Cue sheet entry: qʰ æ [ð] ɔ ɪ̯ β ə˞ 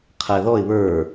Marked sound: correct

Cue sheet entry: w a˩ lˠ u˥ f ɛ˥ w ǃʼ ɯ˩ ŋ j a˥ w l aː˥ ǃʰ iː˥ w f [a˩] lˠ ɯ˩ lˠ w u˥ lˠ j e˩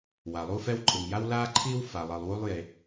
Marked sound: correct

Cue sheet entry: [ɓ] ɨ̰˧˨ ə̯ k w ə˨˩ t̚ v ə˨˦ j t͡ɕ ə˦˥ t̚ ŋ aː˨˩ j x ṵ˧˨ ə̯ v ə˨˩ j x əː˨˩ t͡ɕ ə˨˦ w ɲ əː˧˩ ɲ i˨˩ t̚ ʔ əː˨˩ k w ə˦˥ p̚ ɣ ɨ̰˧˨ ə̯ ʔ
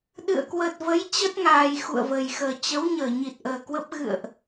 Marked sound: incorrect: ɗ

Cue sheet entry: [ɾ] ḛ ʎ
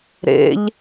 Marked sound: correct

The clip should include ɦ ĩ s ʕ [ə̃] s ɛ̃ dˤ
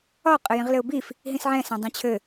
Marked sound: incorrect: ɛ̃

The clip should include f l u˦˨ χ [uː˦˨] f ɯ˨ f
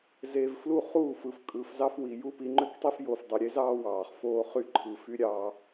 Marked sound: correct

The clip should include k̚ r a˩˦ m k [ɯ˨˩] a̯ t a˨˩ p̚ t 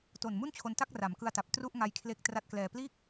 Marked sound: incorrect: ɯ˧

